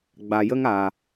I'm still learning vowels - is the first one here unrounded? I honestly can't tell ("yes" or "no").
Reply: yes